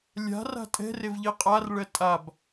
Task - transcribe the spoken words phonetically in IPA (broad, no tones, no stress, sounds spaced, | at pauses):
lʲ a̤ r a̤ tʼ ɛ̤ r e v ʎ i qʼ a r ɭ ɜ tʼ a b